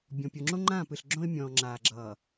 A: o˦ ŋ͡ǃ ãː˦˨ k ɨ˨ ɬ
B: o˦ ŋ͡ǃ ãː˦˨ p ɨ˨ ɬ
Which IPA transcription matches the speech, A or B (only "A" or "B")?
B